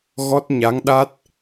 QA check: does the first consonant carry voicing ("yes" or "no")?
yes